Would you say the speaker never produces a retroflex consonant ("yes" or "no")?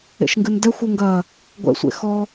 yes